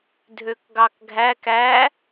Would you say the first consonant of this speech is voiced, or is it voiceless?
voiced